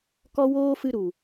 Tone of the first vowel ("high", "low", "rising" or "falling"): high